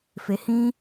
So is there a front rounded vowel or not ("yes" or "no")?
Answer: no